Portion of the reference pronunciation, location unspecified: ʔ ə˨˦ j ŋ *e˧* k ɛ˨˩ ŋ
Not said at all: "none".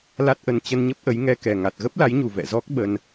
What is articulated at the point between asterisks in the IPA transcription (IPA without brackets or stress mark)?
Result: ɛ˧